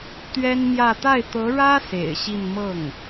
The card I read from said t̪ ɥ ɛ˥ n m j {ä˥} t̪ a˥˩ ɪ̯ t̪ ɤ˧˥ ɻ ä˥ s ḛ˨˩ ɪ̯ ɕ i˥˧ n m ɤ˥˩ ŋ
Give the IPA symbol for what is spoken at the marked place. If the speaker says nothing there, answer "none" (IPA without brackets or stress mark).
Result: ä˥˧